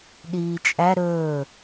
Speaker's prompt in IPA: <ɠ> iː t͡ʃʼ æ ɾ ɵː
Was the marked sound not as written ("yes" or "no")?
yes